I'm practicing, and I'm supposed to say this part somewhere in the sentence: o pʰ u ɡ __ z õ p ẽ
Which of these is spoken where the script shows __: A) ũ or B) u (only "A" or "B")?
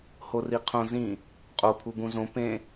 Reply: A